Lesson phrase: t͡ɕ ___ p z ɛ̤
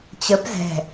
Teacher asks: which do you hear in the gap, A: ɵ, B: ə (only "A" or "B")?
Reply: B